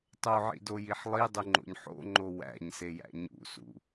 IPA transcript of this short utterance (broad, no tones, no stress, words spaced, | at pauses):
tˤoʕḭdojiħ lˠidˤuŋ͡ǃo̰ɲ ħo̰ŋ͡ǃo wæ̰ɲsejæ̰ ɲṵsṵ